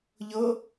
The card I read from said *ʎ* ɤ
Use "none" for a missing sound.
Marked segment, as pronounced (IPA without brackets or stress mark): ʎ